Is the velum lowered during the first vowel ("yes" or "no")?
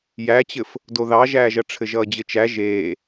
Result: no